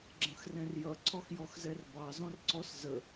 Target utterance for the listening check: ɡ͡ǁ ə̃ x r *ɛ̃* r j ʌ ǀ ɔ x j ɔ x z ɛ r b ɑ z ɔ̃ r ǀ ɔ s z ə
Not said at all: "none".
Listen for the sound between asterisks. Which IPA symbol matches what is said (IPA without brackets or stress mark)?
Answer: ɛ̃